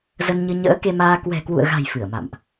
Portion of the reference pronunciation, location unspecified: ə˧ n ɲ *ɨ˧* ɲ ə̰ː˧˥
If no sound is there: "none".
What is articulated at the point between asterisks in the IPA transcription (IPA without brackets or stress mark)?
ɨ˧